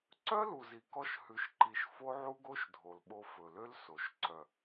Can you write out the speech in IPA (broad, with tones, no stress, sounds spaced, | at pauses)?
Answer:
ǀ œ˦ l u˨ z i˨ k ɔ˧ ʃ h ʉ˧ ʃ ǃ i˧ ʃ f o˦ ʕ u˦ ɡ o˦ ʃ dʱ o˨ l ɓ o˧ f ɵ˨ l ø˦ l s o˨ ʃ ǀ œ˨